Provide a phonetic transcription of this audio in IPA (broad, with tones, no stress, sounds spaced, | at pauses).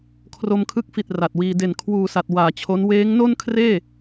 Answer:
kʰ r o˧ m kʰ ɯ˦˥ k̚ f i˨˩ t̚ r a˨˩ t̚ w iː˧ d e˨˩ n kʰ w uː˨˩ s a˨˩ t̚ w aː˨˩ t͡ɕʰ o˦˥ n w eː˦˥ ŋ n o˥˩ n kʰ r eː˥˩